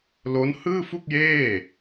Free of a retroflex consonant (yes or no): yes